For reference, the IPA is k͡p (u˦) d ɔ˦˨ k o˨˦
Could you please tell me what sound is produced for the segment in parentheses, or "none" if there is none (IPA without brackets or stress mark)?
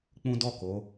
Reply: ũ˦